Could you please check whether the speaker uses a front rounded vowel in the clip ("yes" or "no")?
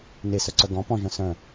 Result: yes